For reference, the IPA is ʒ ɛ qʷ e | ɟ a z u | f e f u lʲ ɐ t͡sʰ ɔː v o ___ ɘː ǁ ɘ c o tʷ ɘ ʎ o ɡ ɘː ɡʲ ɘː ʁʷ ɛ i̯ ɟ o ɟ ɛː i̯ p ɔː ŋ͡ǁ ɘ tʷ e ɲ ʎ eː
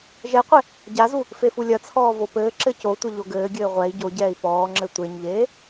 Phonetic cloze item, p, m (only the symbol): p